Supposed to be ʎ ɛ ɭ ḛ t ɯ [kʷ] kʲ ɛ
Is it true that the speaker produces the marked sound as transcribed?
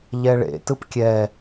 no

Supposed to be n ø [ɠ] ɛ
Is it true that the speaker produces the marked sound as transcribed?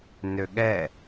yes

